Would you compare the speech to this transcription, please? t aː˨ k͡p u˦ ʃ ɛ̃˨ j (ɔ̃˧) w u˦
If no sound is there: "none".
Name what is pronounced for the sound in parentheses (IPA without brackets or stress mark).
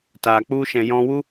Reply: ɔ̃˧